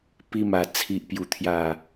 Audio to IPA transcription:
p i˧ m a˨˩ t͡sʰ i˨ ʔ p j u˨˩ t̪ʰ j a˨˩

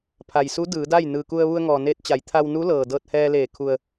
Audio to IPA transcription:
pʰ a˩ j s u˧˥ d ɯː˩˧ d a˥˨ j n ɯː˩ k u˧ ə̯ ʋ u˧ ə̯ ŋ ɔː˩ n eː˧ t̚ t͡ɕ a˩˧ j t̪ʰ a˧ w n u˧˥ l ɤː˩ d ɤː˧ t̚ h ɛː˧ l eː˧˩ kʰ u˩ ə̯

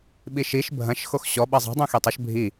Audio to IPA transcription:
ɓ i ʃ i ʃ bʱ ɐ̃ ʃ x o x ɕ ɔ ɓ ɐ zˤ ɛ̤ dˤ ũ x e tˤ ɐ ʃ bʱ i

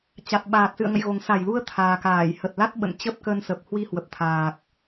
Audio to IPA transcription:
t͡ɕ a˨˩ t̚ ɓ aː˨˩ t̚ s ɨ̰˧˨ ə̯ ŋ ə̰˧˨ j ɣ o˨˩ ŋ s a˧˩ j l u˧ ə̯ t̪ʰ aː˨˩ k aː˧˩ j h ə˨˩ t̚ l a˦˥ t̚ ɓ ə̰˧˨ n t͡ɕ ə˦˥ p̚ k ə˧ n s ə˨˩ p̚ h w i˧ h w ə˨˩ p̚ t̪ʰ aː˨˩ k̚

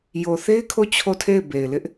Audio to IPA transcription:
j o˨ θ e˦ ɪ̯ kʰ o˦˨ t͡ɕʰ o˦˨ tʰ e˦˨ ɪ̯ b e˨ ɪ̯ l ɪ˦ ʔ

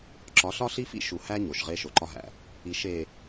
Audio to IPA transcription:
ǁ ɒ˨˦ ɬ ɒ˦ ɬ i˦ f ḭ˦ ʃ u˨ h æ˦ ɲ o˨ ʃ ʁ e˦ ʃ o˨ ǃ ɒ˦ ɦ æ̰˨ | i˨ ʃ e˨

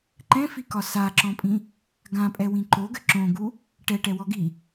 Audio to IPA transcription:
ǃ ɛ̃ f i k ɒ s a ǁ ɔ̃ pʼ ĩ | ɡ ã pʼ ɛ w ĩ ǃ o ɡ ɘ ǁ õ ɡ u | ʈ ɛ ʈ ɛ w ɔ ɡ i

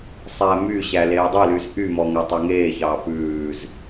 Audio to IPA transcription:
sˤ æ m y ɕ æ l eː dˤ ø l y z ʔ y m ɔ ŋ æ tˤ ɑ ŋ eː ç ɑː p ʉː z

